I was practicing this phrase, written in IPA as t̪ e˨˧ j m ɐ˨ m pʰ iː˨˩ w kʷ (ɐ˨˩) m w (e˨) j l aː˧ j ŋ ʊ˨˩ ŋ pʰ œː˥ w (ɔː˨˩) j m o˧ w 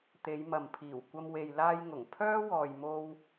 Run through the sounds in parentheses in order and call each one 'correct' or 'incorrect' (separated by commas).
incorrect, correct, incorrect